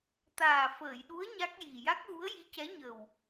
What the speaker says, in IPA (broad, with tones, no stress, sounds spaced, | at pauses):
t̪ aː˨˩ f əː˨˩˨ j ɗ u˧˥ ə̯ ɲ a˦˥ k̚ j i˨˩ j a˦˥ k̚ ɣ u˧˥ ə̯ j i˧˥ c ɛ˧˥ ɲ ə˨˩ w